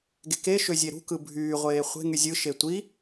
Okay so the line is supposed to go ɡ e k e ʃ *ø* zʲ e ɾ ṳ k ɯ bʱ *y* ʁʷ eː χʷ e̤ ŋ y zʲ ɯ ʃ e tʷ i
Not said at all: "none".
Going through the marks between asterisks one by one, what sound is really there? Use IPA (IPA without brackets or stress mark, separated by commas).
ø, yː